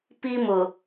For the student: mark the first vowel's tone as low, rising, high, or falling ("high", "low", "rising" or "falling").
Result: high